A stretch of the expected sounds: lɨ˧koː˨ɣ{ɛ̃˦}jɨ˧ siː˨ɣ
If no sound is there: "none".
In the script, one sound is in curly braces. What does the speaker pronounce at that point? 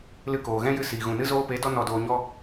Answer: ɛ̃˦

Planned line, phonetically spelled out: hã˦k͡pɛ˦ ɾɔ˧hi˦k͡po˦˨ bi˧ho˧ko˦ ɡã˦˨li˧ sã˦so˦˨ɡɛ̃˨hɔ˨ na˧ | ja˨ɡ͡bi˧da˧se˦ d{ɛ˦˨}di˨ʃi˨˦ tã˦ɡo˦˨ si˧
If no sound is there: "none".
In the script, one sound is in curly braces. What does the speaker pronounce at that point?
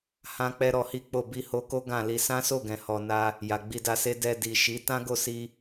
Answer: ɛ˧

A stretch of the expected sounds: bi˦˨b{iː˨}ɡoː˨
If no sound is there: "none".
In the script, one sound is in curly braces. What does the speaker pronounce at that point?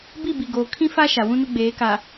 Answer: i˨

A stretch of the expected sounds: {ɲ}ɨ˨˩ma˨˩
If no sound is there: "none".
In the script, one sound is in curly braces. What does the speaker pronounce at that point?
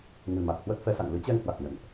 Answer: ŋ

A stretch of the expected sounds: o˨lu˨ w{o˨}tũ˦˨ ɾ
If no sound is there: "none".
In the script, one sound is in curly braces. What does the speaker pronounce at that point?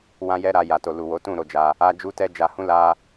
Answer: o˨˦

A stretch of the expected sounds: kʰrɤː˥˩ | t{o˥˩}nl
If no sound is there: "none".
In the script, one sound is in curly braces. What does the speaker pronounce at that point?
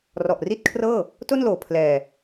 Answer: o˥˩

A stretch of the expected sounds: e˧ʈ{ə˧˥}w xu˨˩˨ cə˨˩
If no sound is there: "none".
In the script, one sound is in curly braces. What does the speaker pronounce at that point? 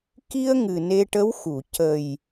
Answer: ə˧˥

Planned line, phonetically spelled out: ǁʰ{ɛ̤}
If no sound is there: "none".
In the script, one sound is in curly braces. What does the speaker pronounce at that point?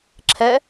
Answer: ɛ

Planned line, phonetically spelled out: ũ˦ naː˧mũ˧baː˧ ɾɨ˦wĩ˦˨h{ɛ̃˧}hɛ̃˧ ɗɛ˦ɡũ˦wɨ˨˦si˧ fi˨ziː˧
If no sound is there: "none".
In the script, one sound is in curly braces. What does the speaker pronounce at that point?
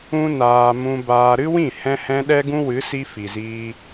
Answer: ɛ̃˧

